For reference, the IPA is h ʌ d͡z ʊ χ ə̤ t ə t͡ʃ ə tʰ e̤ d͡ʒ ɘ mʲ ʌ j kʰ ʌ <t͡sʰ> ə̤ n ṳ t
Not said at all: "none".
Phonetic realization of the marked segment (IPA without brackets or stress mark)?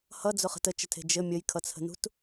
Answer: t͡sʰ